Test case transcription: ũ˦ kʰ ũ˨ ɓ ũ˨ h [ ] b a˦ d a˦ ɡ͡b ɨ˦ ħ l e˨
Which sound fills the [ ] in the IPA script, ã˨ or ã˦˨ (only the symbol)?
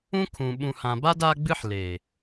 ã˨